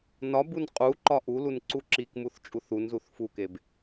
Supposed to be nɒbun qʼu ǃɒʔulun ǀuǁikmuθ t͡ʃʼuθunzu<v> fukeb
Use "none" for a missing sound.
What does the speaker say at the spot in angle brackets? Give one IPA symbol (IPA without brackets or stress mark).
θ